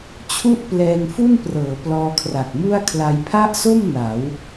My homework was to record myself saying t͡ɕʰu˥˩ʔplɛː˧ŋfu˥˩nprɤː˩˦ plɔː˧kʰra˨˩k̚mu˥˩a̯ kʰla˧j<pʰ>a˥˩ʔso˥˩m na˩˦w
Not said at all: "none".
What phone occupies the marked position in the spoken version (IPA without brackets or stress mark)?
pʰ